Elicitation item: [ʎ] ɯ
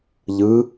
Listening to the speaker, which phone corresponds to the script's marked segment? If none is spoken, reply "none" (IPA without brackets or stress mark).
ʎ